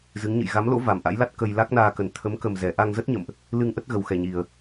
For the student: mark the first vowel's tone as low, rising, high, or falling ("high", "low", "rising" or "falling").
rising